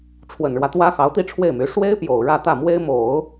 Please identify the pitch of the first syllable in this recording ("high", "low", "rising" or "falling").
low